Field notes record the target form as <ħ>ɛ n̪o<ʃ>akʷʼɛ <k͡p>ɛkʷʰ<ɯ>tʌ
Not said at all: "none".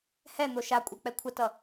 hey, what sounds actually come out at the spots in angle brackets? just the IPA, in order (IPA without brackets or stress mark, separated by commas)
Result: h, ʃ, k͡p, ə